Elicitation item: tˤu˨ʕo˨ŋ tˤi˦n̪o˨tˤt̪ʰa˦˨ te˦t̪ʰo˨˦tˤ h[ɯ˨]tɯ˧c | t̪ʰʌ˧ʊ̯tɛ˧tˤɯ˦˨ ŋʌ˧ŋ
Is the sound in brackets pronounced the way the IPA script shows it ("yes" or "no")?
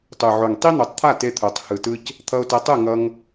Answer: yes